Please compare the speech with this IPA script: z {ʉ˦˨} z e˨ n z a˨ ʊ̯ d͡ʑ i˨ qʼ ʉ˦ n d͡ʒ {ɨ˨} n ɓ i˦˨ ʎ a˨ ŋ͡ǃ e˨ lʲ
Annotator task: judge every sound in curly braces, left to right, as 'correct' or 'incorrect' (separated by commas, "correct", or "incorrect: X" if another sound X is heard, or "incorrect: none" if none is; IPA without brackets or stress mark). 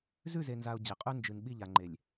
correct, correct